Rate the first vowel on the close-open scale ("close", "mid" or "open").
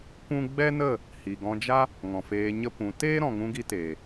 close